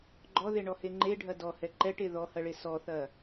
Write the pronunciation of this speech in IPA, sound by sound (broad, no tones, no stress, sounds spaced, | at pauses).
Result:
ɡ͡ǃ ɔ ð e ɳ ɔ h e ŋ͡ǃ e ɖʱ ɐ d ɔ h ɛ ǃ ɛ ʈ e ð ɔ h ɐ ɭ e s ɔ θ ɐ